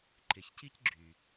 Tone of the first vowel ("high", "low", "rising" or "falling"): low